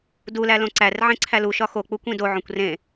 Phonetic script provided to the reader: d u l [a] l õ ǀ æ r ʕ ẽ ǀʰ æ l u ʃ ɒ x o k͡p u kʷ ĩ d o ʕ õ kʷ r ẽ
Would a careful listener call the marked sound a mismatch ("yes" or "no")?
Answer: yes